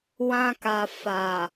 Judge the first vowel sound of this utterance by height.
low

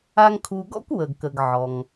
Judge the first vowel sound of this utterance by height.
low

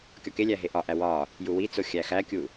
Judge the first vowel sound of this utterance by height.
low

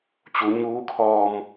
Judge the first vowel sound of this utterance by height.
high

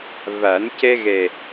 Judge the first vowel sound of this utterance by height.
low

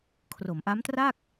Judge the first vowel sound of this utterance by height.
mid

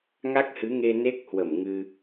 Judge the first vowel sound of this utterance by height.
low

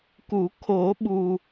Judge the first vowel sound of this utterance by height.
high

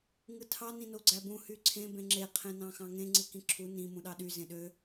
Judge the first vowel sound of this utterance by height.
high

